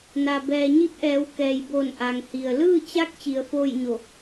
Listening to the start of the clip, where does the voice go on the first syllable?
low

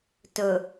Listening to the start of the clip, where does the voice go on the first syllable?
low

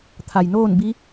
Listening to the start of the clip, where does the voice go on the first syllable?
low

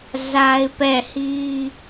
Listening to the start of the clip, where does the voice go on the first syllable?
high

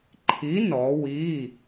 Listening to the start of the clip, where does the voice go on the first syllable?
rising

